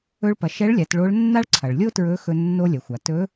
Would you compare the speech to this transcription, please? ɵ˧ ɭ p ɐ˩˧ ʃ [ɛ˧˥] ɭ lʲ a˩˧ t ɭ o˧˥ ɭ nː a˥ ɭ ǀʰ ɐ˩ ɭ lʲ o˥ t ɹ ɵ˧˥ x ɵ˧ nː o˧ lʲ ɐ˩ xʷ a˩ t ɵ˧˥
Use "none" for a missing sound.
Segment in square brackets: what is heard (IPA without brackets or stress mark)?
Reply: ɛ˧˥